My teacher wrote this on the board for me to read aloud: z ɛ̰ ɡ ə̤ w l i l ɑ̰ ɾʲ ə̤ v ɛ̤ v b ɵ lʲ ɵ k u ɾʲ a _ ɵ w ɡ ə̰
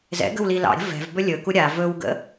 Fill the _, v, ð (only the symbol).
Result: v